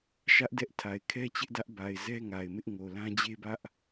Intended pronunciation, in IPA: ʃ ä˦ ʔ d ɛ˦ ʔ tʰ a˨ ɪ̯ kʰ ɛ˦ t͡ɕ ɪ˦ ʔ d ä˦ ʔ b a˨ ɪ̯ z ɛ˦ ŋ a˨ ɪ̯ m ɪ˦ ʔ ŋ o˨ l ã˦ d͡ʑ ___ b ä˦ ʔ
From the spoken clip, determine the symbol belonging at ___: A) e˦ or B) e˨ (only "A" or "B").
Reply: A